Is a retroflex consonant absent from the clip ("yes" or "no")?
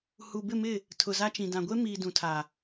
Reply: yes